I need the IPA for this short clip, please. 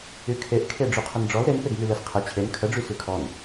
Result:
y kʰ e ʔ kʰ e ɖ͡ʐ y qʰ ə n ɖ͡ʐ ɔ l ɾ e n p e ɡ m y l ə s qʰ ə t͡ɕʰ e n kʰ ə ɖ͡ʐ y s y kʰ ɔ n

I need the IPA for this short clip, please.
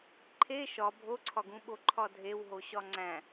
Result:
ǃʰ e ʃ ɒ bʱ o ǀʰ ɒ ɡ ũ ɓ o ǃʰ ɒ dʱ e w ɦ o ɕ ɒ ŋ͡ǀ æ̃

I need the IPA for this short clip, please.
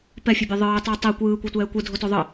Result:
p ɛ fʲ e bʲ a ðˤ ɯː tˤ ɛ tˤ i kʷ ɯː kʷ ɤ tʷ ɛː kʷ ɯ dʱ o t o ðˤ ɯ

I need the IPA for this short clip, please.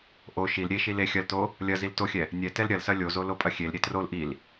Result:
ʔ o ʃ i l ɾʲ e ʃ i l e xʲ ɐ l t o | lʲ ɐ z i l t o xʲ ɛ | nʲ ɛ t ɛ l ɾʲ ɐ l s ɐ lʲ o z o l o pʼ ɐ xʲ e l ɾʲ e t r o l ʔ i l

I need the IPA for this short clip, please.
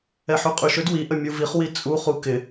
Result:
ɛ ħ y qʼ y ʃ ø d w i ʔ ə mʲ u v i χ w i t͡sʼ u χ u k ɪ

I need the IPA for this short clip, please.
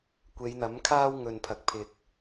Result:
kʷ e˨˧ j n̪ ɐ˨˥ m kʰ aː˥ w ŋ ɵ˨ n pʰ ɐ˨ k̚ pʰ ɪ˨ k̚

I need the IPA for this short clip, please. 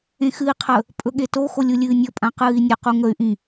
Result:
ẽ x ɨ i̯ qʰ ə | pʼ ɵ ɠ e t o x o lʲ u lʲ ɨː nʲ ɵ pʼ ã q ɨː i̯ nʲ ə q u ŋ ə y̯ ʔ ĩ

